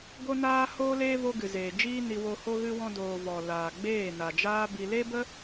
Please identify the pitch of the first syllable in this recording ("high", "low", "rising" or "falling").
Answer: high